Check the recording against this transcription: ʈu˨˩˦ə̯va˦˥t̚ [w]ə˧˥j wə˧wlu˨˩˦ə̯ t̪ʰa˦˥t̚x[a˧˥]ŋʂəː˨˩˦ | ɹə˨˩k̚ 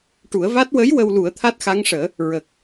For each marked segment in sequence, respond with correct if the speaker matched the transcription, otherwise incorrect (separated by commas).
correct, correct